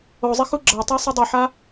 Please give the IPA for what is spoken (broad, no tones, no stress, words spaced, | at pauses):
ozˤix uɡ͡ǁatˤe sˤidˤiħa